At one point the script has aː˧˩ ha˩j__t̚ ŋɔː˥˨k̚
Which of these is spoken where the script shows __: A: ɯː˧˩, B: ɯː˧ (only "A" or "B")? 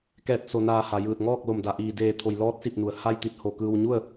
A